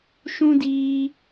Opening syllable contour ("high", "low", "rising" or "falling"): high